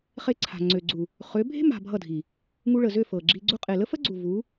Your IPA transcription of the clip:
χe˧ǀʰa̤˨ ŋ͡ǀø˨ɡ͡ǀu˨ | χø˨˦ bʱe̤˦ ma̤˧bʱʌ˦˨dʱi˨ | ŋu˧ɭə˨zø˦˨ fɤ˨ɡ͡ǁi˧ɡ͡ǀu˦ qʼe˨lə˦fə˦ɡ͡ǀu˨ vu˨˦

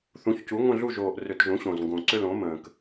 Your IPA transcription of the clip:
θũ˩˥çcu˩˥ ŋʷə̃˦˨ɮu˦˨ʒoː˨˩ʔ rʏ˧˩˧tʒũ˩˥ɕõ˨˩zŋɡõ˨˩ ǀʏ˦˨lõ˩˥mə̃ː˨˩k

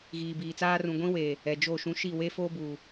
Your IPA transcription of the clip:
ɣiː˨biː˨t͡saː˦ rũ˨ ɡʷĩ˦weː˨ | ɛ˨d͡ʒo˦˨ʃũ˦ ʃi˦˨we˦foː˦ buː˨

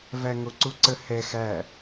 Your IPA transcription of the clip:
væŋoǀuǀə hɛ xæ

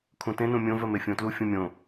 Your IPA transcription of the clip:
kʰũtẽnũ mʲõvɜ mefʲõtlu fʲũmʲõ

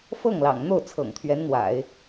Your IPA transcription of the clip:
fɤ˥˩ŋlɑ̰˨˩ŋn̪o˥˩ʊ̯t͡sʰɤ̰˨˩ŋ t̪ʰɥɛ˧˥nn̪wa̰˨˩˦ɪ̯

